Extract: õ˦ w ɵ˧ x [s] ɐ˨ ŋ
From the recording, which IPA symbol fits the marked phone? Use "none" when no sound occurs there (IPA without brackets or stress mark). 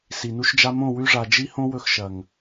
ʃ